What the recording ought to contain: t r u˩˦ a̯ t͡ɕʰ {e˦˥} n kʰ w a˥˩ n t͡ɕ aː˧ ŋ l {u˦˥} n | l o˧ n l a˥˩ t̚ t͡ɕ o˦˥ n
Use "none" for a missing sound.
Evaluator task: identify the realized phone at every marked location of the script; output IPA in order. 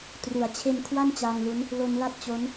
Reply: e˧, u˦˥

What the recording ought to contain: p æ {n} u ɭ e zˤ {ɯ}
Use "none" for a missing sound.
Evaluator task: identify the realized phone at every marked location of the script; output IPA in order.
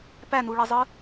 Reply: n, ɯ

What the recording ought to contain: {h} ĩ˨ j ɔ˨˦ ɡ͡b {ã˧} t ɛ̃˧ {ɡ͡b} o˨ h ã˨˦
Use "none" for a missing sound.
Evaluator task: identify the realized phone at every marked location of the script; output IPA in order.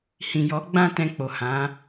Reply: h, ã˧, k͡p

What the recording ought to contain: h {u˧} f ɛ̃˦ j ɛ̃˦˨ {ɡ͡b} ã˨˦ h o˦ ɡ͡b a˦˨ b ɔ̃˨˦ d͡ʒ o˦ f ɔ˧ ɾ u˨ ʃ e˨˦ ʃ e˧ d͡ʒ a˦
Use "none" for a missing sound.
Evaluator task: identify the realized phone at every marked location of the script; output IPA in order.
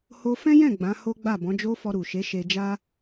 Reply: o˧, ɡ͡b

